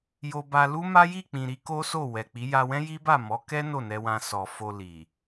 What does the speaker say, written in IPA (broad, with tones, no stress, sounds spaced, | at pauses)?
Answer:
j o˧ b a˧ l u˦ m a˦ j i˦˨ k͡p ĩ˨ ɾ i˧ k o˦ s o˦˨ w ɛ˨ k͡p i˨˦ j a˧ w ɛ̃˦ j i˦ b a˦˨ m ɔ˨˦ k ɛ˦ n o˦˨ n ɛ˧ w ã˧ s ɔ˨ f o˧ l i˨